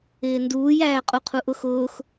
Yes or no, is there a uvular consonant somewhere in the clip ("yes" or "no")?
yes